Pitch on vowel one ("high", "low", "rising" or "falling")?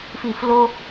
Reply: falling